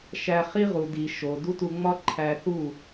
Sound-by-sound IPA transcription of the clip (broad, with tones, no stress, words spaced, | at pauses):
ʃæ˧ χi˦ʁu˨di˨ ʃo˨ du˦tu˧ ŋ͡mɒ˦ǃʰæ˧θu˦˨